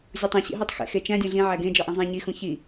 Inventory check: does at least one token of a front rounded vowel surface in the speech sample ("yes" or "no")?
no